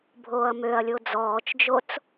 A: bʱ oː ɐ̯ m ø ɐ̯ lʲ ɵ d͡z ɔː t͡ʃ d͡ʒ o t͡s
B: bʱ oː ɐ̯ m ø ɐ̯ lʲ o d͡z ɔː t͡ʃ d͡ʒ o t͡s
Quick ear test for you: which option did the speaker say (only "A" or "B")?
B